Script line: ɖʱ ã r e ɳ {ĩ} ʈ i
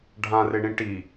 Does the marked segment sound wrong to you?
no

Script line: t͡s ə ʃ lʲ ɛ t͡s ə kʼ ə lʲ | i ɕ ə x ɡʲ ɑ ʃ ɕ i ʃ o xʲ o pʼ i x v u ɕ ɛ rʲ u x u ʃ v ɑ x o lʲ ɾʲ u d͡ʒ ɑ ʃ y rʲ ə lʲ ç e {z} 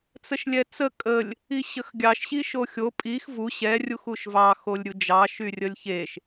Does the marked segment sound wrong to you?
yes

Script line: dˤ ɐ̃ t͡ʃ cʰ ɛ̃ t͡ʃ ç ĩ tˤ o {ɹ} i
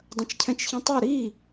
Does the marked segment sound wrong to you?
yes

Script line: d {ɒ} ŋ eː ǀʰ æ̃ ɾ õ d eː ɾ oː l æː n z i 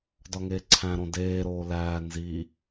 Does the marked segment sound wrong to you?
no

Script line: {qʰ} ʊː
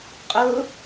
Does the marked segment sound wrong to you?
yes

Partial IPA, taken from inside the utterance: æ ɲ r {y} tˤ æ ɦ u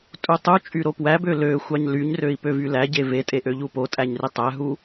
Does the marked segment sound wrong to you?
yes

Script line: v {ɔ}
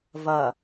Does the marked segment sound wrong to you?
yes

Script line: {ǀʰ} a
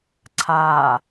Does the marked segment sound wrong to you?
no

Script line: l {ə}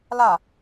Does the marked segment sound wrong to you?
yes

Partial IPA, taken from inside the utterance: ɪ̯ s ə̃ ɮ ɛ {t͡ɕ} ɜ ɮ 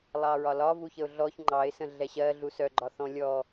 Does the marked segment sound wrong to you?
yes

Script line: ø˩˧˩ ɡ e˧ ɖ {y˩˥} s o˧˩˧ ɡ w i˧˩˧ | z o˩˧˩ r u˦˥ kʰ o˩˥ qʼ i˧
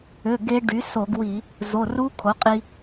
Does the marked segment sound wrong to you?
no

